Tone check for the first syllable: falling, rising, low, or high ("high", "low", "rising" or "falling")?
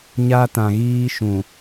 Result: high